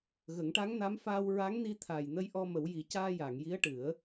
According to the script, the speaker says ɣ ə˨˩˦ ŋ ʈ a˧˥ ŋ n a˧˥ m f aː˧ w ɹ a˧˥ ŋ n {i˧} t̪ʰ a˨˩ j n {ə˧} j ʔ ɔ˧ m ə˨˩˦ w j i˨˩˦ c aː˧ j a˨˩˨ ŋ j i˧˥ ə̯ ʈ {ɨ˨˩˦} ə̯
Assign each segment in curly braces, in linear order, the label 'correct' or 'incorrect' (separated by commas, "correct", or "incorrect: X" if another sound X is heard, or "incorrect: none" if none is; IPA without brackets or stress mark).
correct, correct, correct